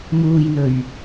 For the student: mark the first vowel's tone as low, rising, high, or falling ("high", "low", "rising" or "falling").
low